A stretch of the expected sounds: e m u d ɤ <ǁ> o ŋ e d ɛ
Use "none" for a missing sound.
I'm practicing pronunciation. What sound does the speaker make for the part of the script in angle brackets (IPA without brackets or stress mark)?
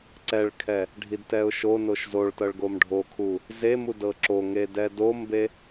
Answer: ǁ